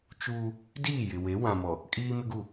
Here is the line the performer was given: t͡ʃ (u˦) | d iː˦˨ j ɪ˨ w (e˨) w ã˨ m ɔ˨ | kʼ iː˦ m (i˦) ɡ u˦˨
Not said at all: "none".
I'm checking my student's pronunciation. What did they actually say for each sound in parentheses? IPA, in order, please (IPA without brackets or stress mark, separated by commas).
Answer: uː˦, e˨˦, ɪ˦